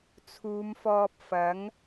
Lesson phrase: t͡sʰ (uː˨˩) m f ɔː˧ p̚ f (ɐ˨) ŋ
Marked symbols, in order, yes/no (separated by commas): no, no